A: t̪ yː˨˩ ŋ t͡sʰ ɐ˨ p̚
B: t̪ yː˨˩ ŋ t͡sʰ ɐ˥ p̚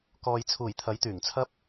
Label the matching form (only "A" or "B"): B